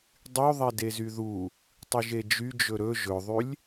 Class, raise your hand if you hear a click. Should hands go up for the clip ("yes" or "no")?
no